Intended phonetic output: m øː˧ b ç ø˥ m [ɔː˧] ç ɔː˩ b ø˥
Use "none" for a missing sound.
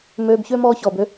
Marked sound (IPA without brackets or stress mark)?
ɔː˧